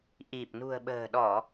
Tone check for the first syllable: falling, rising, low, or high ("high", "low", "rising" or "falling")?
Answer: low